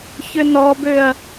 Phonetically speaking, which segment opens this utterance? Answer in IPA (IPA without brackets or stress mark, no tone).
ç